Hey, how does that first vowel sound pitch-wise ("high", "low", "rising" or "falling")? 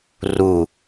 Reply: falling